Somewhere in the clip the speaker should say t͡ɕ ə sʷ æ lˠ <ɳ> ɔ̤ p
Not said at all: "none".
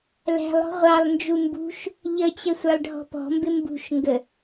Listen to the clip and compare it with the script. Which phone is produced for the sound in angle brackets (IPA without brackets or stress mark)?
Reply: ɖʱ